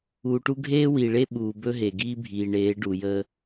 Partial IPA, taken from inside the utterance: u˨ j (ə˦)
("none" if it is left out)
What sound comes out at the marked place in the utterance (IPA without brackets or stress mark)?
ə˦